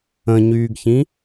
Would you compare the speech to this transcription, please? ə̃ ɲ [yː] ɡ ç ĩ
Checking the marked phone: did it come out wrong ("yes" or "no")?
no